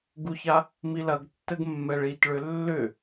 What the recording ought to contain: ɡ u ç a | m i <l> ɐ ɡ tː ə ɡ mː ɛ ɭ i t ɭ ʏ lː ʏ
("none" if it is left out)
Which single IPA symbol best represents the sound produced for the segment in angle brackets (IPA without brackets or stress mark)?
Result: l